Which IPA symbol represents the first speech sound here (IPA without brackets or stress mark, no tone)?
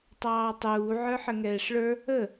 tˤ